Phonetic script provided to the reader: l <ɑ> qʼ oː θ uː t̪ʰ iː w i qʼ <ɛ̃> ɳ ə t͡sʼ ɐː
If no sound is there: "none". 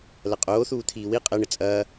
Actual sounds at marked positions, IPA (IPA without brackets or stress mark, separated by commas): ɐ, ɛ